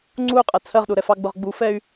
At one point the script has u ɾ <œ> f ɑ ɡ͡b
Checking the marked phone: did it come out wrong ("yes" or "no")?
yes